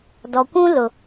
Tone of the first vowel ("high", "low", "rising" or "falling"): low